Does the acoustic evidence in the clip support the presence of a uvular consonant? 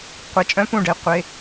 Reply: yes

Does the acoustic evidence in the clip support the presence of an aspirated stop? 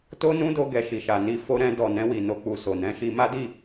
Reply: no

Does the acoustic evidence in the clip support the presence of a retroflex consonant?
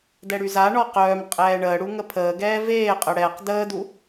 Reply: yes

